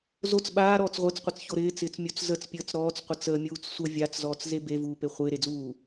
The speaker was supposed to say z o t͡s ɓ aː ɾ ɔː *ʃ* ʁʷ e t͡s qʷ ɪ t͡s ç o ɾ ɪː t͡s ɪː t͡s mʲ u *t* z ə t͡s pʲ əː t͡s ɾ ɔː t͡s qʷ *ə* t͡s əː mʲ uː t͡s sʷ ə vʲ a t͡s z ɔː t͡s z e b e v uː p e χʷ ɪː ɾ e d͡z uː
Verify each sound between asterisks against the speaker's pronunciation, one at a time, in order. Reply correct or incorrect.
incorrect, incorrect, correct

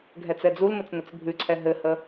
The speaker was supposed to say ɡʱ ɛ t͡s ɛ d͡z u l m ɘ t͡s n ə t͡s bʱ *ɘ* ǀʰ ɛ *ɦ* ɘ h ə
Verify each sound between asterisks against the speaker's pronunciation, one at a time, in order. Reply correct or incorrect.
incorrect, correct

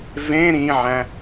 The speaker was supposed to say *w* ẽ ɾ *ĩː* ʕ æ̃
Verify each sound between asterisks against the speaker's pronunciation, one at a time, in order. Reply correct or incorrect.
incorrect, incorrect

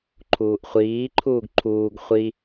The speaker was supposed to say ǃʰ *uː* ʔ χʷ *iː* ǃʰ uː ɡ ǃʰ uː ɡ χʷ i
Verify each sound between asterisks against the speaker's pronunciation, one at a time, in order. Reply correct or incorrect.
correct, correct

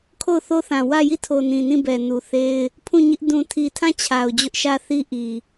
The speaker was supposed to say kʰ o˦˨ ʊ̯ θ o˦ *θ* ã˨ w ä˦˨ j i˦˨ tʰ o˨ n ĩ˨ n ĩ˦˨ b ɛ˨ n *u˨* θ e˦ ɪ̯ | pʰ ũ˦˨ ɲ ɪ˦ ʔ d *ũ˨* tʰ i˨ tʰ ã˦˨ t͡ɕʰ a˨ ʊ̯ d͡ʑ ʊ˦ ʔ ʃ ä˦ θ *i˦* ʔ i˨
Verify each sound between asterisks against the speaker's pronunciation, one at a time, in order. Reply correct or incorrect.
correct, correct, correct, correct

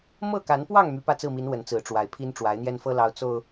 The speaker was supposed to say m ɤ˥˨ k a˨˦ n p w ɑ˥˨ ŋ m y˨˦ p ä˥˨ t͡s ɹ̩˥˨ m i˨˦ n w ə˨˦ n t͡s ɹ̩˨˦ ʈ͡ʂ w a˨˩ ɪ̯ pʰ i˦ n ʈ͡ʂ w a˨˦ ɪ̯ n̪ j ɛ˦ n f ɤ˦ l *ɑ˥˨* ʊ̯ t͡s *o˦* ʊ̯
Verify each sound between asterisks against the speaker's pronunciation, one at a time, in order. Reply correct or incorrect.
incorrect, incorrect

